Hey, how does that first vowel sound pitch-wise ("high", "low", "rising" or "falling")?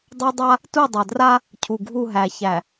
high